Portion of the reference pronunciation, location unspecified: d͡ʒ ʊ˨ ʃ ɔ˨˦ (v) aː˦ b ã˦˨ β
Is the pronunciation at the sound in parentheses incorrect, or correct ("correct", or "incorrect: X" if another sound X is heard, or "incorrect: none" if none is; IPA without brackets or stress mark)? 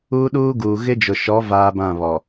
correct